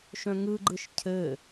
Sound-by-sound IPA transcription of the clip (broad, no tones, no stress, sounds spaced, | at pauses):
ʃ œ̃ ŋ ɯ ɡ͡ǃ ɯ ʃ cʰ ɘ